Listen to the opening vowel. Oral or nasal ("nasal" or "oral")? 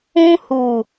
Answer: nasal